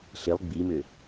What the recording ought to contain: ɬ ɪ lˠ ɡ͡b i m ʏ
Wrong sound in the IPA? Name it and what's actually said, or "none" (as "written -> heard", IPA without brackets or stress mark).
none